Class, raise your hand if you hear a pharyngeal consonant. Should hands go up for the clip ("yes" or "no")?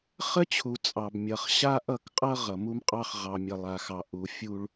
no